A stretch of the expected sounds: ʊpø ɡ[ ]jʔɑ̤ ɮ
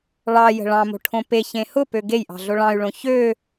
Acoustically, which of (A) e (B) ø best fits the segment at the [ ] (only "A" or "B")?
A